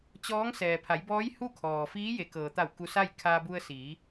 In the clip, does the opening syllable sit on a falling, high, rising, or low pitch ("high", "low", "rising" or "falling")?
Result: rising